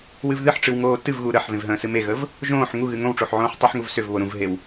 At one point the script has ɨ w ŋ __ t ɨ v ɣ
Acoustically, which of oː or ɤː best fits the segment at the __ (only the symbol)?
oː